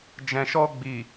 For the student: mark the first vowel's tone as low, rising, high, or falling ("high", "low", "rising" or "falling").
low